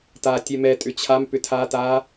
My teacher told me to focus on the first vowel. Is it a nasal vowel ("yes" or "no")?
no